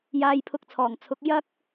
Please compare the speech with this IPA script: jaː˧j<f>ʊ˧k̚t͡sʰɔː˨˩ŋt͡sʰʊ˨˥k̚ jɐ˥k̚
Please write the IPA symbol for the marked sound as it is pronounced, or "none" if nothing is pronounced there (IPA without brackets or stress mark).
pʰ